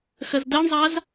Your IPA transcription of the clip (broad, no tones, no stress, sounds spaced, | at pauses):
x ə z d ɜ ɳ zˤ a z